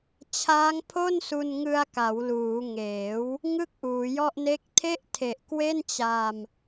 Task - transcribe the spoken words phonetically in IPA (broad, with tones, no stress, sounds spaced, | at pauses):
t͡ɕʰ aː˦˥ ŋ pʰ o˥˩ n s u˧ n ŋ ɯ˧ a̯ k a˩˦ w l uː˩˦ ŋ eː˩˦ w | ŋ ɯ˥˩ k̚ ʔ uː˩˦ j ɔ˥˩ ʔ n e˥˩ k̚ tʰ e˥˩ ʔ tʰ e˨˩ ʔ k w e˥˩ n t͡ɕ a˧ m